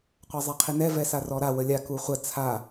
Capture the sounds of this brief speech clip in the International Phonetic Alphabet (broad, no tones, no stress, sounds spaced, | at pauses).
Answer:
qʷ a zˤ ɛ qʰ i n ɛ v ɛ s a r ɔ ɾ a w ə lʲ a k u χʷ ə t͡sʰ a